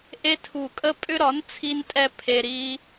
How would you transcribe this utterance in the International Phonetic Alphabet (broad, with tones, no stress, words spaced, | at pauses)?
ʔe˦tʰu˧˩kʼə˦ pʼʏ˦ ɾɒ˨˥n t͡sʰi˦ntʼɛ˦ pʰe˦ ɾi˦